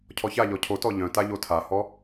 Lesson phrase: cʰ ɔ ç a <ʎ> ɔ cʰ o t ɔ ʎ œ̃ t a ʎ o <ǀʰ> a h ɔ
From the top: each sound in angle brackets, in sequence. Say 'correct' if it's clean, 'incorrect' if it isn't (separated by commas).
correct, incorrect